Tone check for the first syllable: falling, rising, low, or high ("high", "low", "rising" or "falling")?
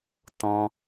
high